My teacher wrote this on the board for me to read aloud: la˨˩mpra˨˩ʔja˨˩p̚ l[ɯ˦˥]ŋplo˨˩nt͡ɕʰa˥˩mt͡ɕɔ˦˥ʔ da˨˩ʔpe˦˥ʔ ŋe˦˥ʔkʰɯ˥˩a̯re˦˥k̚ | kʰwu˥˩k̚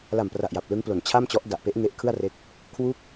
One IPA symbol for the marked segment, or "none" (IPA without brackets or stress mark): ɯ˦˥